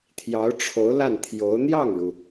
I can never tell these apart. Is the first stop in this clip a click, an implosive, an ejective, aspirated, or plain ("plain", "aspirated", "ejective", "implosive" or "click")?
aspirated